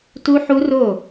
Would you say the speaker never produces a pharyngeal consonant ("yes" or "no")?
no